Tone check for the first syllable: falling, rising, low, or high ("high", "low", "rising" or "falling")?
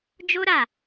high